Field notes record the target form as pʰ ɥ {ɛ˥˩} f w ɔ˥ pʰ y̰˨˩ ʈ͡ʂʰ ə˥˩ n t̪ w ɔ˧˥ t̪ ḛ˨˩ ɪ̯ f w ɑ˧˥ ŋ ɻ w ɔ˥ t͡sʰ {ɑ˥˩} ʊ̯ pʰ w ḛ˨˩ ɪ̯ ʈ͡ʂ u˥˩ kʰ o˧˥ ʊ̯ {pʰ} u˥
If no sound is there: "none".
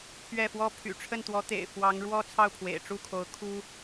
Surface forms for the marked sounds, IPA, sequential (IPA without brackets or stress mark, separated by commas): ɛ˥˩, ɑ˥˩, kʰ